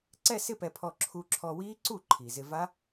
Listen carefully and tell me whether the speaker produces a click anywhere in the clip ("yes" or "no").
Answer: yes